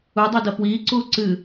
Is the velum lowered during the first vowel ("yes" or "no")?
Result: no